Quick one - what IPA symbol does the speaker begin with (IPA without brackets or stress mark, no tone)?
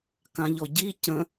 k